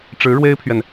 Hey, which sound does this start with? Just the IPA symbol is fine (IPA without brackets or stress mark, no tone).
ʈ͡ʂ